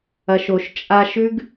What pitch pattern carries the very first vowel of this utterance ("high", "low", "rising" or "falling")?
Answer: low